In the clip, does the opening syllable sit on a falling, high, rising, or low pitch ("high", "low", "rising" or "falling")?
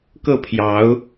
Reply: falling